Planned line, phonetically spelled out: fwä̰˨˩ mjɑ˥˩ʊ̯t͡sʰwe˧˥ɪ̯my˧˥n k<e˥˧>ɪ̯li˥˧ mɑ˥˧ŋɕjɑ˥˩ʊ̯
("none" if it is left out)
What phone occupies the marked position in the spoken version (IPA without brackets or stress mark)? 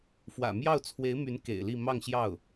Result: ḛ˨˩